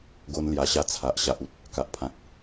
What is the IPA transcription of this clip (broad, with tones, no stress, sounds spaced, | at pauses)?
ɡ o˧ n l j a˧ ɕ a˥˧ t͡sʰ a˨ ʔ ɕ a˨ ʔ u˨ t̚ | k a˨ ʔ pʰ ã˨ k̚